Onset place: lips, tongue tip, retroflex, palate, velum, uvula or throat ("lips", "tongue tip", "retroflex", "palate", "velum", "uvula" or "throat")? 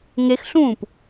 velum